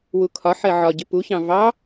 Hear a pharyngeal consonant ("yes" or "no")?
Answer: yes